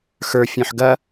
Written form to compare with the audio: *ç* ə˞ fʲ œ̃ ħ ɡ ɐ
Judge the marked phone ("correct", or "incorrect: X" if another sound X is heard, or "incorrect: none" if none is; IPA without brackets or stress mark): incorrect: x